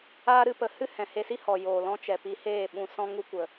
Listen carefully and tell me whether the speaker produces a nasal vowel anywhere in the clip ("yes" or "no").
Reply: yes